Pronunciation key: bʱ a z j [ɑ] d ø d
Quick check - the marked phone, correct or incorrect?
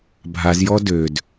incorrect